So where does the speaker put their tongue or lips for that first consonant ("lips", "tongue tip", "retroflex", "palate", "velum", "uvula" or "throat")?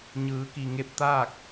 palate